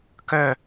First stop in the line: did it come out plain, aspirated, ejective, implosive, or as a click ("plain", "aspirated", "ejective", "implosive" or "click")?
plain